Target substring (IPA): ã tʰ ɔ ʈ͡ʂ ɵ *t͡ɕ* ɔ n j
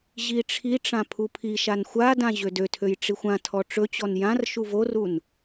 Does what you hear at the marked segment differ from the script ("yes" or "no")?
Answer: no